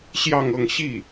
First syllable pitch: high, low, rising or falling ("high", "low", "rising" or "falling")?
falling